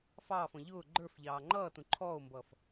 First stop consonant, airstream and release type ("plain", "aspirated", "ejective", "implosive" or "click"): click